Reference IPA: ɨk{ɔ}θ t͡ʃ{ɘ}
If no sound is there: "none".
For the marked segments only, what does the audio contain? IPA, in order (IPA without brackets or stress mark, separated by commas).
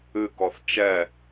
ɔ, ɛ